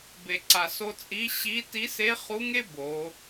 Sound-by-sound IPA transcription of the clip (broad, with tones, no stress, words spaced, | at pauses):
be˩ǀa˩so˧t͡sʼi˧˥ ɕi˧˥ ti˧˥se˧˥χu˧˥ŋe˥ bo˩˧